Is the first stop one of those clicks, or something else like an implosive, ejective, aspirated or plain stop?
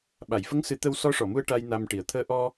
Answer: implosive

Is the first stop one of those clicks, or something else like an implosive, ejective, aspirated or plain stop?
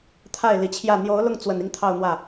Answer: aspirated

